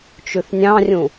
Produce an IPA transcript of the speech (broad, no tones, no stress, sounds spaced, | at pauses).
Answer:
t͡ʃ ʉ θ nʲ ɑ̃ rʲ ũ